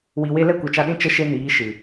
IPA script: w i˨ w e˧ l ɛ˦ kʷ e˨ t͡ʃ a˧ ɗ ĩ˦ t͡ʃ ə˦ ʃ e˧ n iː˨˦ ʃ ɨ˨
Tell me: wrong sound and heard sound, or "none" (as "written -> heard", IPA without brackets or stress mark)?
none